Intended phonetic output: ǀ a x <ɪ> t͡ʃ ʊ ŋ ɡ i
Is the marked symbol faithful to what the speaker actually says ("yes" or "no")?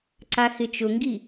yes